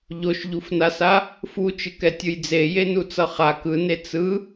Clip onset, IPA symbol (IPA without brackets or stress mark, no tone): ʎ